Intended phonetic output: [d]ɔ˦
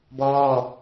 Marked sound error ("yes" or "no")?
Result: yes